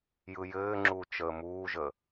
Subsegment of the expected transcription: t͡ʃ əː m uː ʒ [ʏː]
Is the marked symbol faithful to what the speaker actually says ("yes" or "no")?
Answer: no